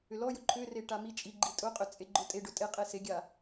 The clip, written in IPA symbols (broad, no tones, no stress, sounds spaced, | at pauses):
ʏ l ɔ j ʊ ǃʰ ʏ r e ʈ a m i t͡ʃʼ i ɡ͡ǃ i tʼ ʊ qʼ ʏ t͡sʼ e ɡ͡ǃ ʊ tʼ e ɖ ʊ tʼ e qʼ e s e ɡʲ a